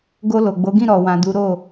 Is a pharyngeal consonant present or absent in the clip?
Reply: absent